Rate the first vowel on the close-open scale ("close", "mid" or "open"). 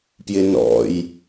close